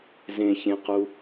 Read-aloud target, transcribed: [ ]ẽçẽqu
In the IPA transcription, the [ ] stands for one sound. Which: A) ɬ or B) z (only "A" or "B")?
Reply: B